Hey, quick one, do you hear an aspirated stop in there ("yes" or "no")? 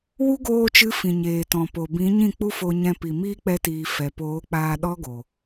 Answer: no